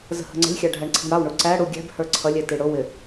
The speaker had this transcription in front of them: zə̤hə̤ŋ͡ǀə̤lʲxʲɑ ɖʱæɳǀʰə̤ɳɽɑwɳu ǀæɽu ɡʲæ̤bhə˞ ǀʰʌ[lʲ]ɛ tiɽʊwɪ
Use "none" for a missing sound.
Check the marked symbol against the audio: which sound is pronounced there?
lʲ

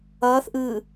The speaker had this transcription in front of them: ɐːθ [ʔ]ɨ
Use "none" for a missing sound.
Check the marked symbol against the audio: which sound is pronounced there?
ʔ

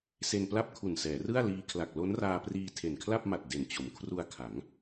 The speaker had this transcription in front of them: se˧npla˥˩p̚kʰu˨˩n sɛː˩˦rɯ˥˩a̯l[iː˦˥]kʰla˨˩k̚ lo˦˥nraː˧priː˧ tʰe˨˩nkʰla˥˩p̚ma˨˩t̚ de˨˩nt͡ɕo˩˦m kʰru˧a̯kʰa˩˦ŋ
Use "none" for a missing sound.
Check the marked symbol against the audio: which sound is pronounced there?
iː˦˥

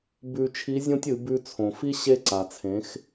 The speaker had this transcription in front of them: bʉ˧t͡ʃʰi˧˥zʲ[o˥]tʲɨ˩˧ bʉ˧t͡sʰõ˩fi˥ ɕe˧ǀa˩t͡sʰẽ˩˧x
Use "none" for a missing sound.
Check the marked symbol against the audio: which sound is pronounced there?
õ˥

